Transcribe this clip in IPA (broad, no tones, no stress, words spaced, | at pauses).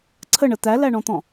ǀʰəɳə t̪ælæɳɔ̃t̪ɔ̃